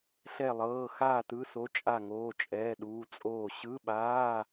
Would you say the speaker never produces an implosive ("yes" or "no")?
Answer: no